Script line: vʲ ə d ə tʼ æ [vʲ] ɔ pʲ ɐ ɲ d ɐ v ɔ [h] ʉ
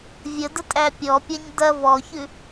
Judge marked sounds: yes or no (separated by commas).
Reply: no, no